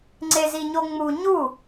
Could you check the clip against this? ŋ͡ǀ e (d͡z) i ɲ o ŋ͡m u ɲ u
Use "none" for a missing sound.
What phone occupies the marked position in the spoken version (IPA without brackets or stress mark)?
z